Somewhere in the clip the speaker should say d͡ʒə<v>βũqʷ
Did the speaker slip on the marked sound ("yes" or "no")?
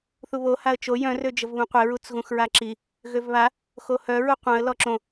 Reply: no